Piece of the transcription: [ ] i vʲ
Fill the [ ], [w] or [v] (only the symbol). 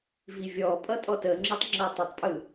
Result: v